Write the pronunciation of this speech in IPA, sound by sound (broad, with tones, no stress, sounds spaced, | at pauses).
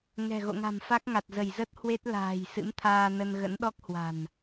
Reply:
ŋ ɛ̤˨˩ ɣ o̰˧˨ ŋ a̤˨˩ m f a˦˥ k̚ ŋ a˨˩ t̚ z ə˧˩ j z ə˦˥ t̚ h w e˦˥ t̚ l a̤ː˨˩ j s ɨ̰˧˥ m t̪ʰ aː˧ n ə˧ n ɣ ə̰˧˥ n ɗ ɔ˦˥ k̚ h w a̤˨˩ n